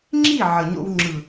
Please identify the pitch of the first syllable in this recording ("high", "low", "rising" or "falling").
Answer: falling